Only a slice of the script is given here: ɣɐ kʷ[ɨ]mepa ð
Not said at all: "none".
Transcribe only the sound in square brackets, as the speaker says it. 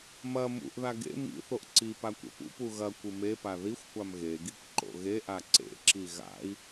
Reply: ɨ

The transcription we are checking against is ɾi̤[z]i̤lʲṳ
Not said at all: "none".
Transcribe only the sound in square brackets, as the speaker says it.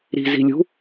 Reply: z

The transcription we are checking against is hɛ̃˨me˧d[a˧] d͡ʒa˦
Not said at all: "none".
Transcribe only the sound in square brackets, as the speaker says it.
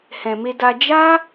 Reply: a˧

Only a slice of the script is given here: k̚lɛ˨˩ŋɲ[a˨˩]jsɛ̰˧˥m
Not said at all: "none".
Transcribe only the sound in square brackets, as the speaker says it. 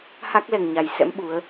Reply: a˨˩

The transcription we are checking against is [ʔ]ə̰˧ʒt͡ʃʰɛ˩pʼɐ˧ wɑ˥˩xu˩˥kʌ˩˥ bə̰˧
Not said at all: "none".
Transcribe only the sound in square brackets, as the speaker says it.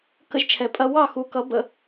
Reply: k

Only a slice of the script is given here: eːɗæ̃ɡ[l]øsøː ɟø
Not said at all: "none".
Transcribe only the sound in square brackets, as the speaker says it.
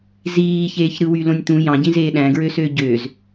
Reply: ɹ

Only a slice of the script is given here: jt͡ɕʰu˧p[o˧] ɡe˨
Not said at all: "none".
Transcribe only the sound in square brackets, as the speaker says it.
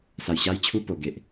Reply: o˨˩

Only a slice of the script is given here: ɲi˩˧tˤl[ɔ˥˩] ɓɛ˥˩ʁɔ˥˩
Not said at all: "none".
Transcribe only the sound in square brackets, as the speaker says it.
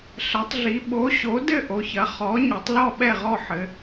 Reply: ɔ˥˩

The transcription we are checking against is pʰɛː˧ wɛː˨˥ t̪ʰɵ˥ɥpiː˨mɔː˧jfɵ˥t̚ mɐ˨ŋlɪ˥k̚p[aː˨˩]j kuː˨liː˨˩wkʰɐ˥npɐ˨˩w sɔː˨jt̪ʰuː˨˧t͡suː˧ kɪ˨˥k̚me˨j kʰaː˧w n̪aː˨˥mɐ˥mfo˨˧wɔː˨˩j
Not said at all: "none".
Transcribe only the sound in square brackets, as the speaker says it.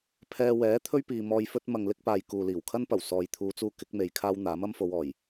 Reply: aː˨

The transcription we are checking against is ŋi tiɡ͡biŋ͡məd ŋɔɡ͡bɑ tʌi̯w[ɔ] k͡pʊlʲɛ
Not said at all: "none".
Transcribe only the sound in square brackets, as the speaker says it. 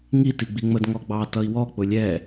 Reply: ɔ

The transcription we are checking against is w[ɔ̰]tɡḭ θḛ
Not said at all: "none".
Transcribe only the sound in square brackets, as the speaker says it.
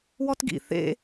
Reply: ɔ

